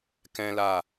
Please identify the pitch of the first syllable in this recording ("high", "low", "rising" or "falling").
high